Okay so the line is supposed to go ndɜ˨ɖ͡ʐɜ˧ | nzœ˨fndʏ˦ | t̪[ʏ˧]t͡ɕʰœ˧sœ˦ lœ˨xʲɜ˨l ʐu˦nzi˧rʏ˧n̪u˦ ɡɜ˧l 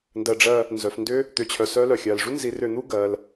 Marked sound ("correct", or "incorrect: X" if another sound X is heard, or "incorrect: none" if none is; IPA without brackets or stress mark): correct